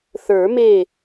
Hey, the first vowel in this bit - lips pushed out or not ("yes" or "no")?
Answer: no